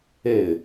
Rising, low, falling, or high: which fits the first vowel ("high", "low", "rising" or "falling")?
falling